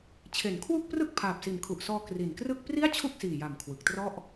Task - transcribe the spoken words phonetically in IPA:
t͡ɕʰ e˩˦ n kʰ w u˥˩ k̚ p r ɯ˥˩ k̚ pʰ aː˨˩ p̚ s i˨˩ n kʰ u˨˩ ʔ s ɔː˧ k r i˨˩ n k r ɯ˥˩ k̚ p r i˥˩ a̯ t͡ɕʰ u˥˩ k̚ s iː˨˩ j a˨˩ m kʰ w ɯ˨˩ k̚ t r ɔ˥˩ ʔ

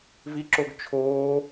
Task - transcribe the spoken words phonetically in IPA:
v i ǁ o ɡ t͡ʃʰ oː

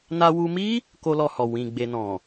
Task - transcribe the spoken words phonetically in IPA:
n a˧ w u˧ m i˦ | k o˦ l ɔ˧ h ɔ˨ w ĩ˨ ɡ͡b e˧ n ɔ̃˨

